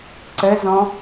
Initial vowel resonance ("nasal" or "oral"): oral